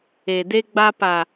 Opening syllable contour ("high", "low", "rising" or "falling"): low